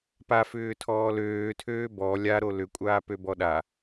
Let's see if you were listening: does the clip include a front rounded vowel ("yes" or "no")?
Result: yes